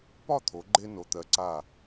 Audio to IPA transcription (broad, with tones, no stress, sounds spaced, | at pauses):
p ɒ˥˧ t̪ʰ o˩˧ ɡ͡ǃ e˧ n o˩˧ t̪ ɜ˩˧ ǀ a˧˩